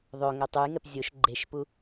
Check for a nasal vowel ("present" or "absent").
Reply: absent